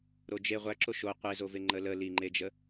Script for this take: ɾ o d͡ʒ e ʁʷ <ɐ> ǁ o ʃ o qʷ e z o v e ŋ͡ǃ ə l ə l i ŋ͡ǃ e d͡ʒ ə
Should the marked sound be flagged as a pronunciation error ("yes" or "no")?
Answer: yes